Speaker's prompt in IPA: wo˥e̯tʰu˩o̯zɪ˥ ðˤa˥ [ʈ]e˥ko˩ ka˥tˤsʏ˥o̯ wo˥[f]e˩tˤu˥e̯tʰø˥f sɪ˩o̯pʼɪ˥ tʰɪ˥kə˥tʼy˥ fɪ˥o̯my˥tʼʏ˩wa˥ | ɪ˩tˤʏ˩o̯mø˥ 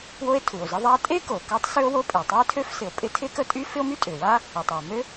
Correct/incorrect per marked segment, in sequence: incorrect: tʼ, incorrect: pʼ

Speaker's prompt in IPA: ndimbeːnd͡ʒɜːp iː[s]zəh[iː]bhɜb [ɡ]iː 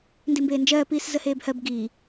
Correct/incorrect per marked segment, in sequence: correct, incorrect: eː, correct

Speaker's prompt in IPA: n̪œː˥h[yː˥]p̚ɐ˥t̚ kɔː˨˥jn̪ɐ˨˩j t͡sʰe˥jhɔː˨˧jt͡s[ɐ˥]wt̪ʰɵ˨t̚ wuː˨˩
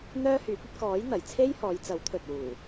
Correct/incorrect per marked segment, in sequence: incorrect: yː˨˥, incorrect: ɐ˨˥

